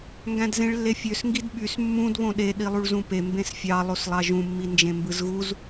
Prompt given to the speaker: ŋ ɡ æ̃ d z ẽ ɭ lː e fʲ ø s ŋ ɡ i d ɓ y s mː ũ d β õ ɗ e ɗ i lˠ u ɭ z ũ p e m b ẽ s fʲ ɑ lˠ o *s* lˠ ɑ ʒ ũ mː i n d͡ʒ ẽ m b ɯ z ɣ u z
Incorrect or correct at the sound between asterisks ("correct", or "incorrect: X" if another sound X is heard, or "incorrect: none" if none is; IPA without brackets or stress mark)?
correct